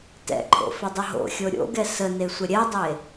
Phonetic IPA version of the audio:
t ɛ̰ ǃʰ o̰ f ʏ dˤ ʏ ɦ o̰ xʲ o ɾʲ o̰ ɡ ɛ s ə n e sʷ ə ɾʲ ɛ dˤ e

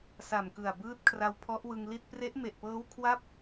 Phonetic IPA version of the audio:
s a˨˩ m k ɯ˨˩ a̯ b ɯː˦˥ t̚ kʰ r a˧ w pʰ ɔ˦˥ ʔ w ɯ˧ ŋ l i˥˩ t̚ p r e˦˥ ʔ m e˨˩ ʔ p ɤː˦˥ w kʰ w a˥˩ p̚

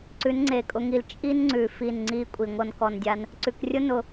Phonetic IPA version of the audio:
ǀ ʉ˨˦ n ŋ͡ǀ e˨ kʼ ʊ˧ ŋ i˧ l t͡ʃʼ i˦ n ŋ͡ǀ ʉ˨ f i˦˨ n ŋ͡ǀ i˦ kʷʼ i˨ ŋʷ ɤ˦ n k ɔ˧ n dʲ a˦ n | ǀ ʉ˨ k rʲ ʊ˦ n ʊ˧

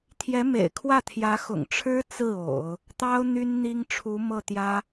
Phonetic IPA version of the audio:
t̪ʰ j ɛ˧˥ m ḛ˨˩ ɪ̯ kʰ w ä˥˩ t̪ʰ j ä˧˥ x ʊ̰˨˩ ŋ ʈ͡ʂʰ ɻ̩˥ t͡s ɹ̩˥˩ o̰˨˩˦ ʊ̯ | t̪ ɑ˥ ʊ̯ n̪ y˥ n n̪ i˥ ŋ ʈ͡ʂʰ u˧˥ m ɤ˥˩ t̪ j ä˥

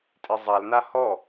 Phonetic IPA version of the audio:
tʼ e zˤ a l n a h ɔ

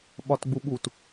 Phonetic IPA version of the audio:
ɓ ɒ t ɡ͡b u ɓ u t

